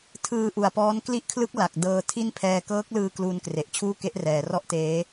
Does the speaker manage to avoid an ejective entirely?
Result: yes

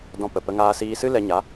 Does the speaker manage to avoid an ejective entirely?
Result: yes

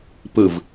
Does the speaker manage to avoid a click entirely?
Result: yes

